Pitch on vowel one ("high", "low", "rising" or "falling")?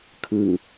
low